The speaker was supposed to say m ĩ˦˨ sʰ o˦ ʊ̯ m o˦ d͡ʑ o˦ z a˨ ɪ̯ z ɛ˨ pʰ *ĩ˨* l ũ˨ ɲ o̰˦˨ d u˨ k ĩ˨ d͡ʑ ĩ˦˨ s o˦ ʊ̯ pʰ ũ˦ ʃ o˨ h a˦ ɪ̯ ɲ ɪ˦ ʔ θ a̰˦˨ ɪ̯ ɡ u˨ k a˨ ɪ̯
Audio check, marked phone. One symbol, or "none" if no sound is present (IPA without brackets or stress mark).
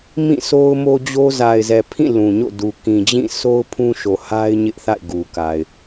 ĩ˦˨